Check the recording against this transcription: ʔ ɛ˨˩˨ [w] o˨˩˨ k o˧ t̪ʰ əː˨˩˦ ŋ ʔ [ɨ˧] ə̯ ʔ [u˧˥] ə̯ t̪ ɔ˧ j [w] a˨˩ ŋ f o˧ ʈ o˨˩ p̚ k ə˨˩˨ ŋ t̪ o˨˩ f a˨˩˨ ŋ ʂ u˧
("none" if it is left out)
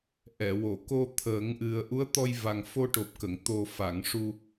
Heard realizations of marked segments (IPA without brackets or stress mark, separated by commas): w, ɨ˨˩, u˧˥, v